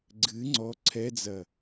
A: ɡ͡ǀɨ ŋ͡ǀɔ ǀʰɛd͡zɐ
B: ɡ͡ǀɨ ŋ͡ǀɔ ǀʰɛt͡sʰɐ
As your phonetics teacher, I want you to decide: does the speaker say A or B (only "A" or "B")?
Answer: A